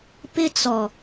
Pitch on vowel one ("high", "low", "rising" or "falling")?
high